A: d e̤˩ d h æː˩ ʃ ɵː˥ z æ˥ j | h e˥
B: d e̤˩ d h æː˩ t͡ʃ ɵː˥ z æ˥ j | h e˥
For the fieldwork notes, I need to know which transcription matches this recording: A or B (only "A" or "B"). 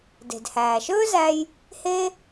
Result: A